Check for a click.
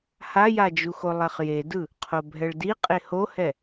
absent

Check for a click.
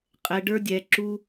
present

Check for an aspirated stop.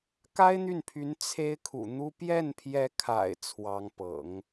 present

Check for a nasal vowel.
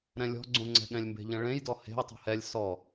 present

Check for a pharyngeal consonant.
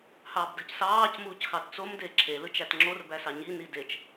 absent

